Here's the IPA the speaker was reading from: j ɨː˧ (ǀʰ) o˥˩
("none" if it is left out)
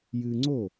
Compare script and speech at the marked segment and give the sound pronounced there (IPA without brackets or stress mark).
ŋ͡ǀ